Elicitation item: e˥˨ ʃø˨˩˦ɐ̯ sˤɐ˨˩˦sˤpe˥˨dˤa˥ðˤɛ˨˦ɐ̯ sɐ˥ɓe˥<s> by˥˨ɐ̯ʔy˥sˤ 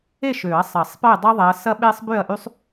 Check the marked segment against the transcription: incorrect: sˤ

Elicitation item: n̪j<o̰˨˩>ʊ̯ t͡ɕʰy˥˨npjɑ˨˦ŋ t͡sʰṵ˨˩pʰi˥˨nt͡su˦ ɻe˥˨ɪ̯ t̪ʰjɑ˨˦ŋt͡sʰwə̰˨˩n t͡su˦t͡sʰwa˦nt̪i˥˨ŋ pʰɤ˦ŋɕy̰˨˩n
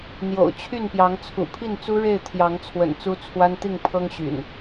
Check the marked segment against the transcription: correct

